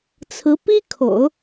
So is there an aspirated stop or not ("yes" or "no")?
yes